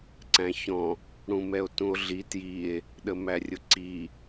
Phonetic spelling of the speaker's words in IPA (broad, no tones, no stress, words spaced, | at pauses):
ǀæ̃çɔ̃ | ɽũmɛo̯tũo̯ɮi tjie̯ | ɗəmærʲʊǀi